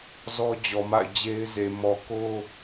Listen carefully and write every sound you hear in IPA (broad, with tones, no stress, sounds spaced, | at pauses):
z ɔ˦ d͡ʑ ɔ˨ m a̰˦˨ ɪ̯ d͡ʑ e˦ ɪ̯ z e˨ m ɔ˨ k o˦